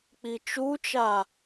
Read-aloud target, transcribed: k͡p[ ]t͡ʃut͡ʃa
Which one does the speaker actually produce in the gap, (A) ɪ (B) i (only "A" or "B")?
B